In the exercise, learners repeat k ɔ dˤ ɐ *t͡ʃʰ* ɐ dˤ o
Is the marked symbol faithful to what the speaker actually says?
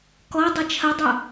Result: yes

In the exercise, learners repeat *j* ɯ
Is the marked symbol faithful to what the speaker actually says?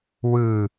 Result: no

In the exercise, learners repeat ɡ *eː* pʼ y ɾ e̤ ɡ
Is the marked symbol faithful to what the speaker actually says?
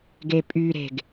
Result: no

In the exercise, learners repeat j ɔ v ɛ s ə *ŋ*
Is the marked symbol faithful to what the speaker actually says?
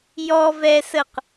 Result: no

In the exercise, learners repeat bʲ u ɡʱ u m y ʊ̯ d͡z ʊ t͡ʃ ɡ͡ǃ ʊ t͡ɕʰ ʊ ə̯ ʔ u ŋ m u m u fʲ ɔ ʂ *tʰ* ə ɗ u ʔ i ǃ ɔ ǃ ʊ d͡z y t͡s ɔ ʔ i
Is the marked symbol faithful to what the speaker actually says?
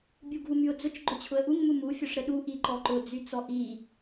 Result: no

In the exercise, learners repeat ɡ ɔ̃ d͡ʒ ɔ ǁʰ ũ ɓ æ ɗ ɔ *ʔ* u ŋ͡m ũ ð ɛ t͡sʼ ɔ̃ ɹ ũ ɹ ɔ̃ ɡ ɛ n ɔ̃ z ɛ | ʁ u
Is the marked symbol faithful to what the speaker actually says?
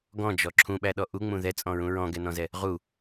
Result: yes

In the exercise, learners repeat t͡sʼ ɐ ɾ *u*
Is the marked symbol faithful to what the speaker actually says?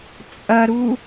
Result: yes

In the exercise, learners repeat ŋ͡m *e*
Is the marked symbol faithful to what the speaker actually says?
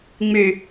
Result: no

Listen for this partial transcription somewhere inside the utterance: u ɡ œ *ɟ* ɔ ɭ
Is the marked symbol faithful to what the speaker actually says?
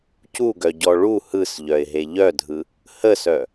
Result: yes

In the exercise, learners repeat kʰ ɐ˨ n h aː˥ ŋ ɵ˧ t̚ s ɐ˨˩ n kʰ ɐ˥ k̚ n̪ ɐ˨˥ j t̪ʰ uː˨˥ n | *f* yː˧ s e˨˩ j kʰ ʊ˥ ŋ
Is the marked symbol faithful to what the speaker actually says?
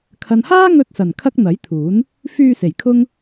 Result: yes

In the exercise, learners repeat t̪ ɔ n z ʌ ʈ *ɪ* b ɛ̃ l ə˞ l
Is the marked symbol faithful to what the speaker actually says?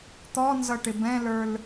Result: yes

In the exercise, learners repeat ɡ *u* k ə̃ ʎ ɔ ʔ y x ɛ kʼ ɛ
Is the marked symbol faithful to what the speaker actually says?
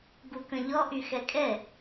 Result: yes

